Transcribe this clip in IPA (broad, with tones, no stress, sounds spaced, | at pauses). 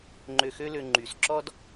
ŋ͡ǃ ø˨ x ø˦ l ø˨ ŋ͡ǃ y˩ s ǁ ɔ˦ d